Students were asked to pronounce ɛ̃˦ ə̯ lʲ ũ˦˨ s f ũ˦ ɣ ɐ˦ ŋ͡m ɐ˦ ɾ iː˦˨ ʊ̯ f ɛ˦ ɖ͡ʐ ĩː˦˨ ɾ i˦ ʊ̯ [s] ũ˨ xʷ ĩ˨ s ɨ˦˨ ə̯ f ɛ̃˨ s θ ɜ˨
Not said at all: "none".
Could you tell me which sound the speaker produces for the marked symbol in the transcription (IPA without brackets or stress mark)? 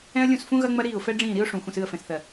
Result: ʂ